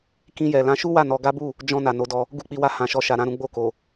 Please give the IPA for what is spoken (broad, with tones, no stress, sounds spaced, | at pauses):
k ĩ˧ j ɛ˨ l ã˧ ʃ u˦ w a˦˨ n ɔ˧ ɡ a˦ b u˦˨ | d͡ʒ ɔ̃˧ n a˨ n o˨˦ d ɔ˧ | ɡ u˧ k͡p i˨ w a˧ h ã˨ ʃ ɔ˧ ʃ a˧ ɾ ã˦ ɾ ũ˦ ɡ͡b o˦˨ k o˨